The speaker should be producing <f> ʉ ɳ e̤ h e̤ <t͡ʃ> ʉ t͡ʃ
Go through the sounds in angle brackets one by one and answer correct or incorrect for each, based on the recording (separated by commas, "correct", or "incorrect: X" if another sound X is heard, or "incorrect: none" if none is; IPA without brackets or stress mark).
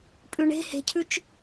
incorrect: pʼ, incorrect: cʰ